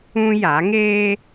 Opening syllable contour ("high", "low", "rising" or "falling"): high